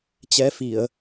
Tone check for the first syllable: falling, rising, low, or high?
rising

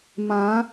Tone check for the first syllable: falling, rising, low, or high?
rising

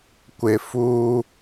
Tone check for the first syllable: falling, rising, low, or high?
low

